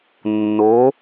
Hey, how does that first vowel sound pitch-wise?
rising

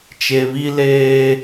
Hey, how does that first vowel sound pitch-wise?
low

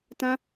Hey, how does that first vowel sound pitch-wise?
high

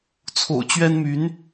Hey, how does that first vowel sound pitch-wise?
low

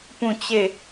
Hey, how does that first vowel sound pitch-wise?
falling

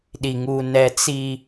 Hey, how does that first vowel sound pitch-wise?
low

